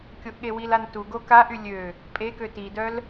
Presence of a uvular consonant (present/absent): absent